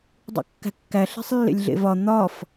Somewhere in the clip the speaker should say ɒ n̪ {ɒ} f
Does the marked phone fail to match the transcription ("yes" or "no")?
no